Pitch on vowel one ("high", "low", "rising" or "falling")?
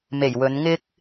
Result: low